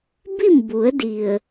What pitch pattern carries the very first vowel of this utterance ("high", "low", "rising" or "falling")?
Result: falling